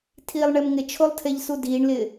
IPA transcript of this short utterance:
tʰiːlˠɳemŋɪt͡ʃʰolˠ tʰeʎsudiːɳlɪː

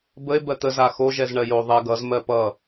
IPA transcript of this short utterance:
bəe̯ bɜt̪ə zaxo ʒɛzɳɜjo ðˤɛ ɡʌz mɜpʌ

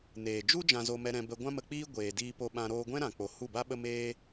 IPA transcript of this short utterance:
neː˨d͡ʒu˦ d͡ʒã˧zo˧mɛ˧ ɾɛ̃˧bə˧ ɡʷã˦mə˧k͡piː˦ ɡʷeː˨diː˧po˧ɓã˧ ɾoː˧ɡʷɛ̃˦ɾã˨k͡po˨ hu˦˨ba˦ɓə˦ meː˦

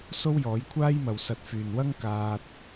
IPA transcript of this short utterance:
so˥wjɔː˨˥jkʷʰaː˥jmɐ˨w sɐ˨˥t̚fyː˨n wɐ˥ŋkaː˧t̚

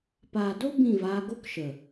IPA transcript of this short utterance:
paː˨do˦ bĩ˦˨vaː˧ɡo˦kʃə˨

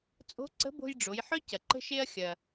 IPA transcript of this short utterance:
t͡sʼo̤˧˥ǀə̤˧˥bo̤˧j ɖ͡ʐo˩˧jħœ˥ cɐ˩ǃə̤˧ʃe˧ɐ̯ xʲɐ˩

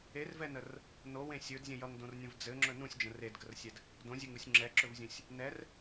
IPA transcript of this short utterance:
ervɛnər | nowẽ sʲɵdzʲə̃ jʌŋdõrnʲə̃v d͡zɘŋ͡ǁɵ nũsʲd͡ʒə̃ redɡərsʲɛd | dõzʲɘŋusʲ ŋ͡ǁɛǁɵvzʲũsʲ | nɛr

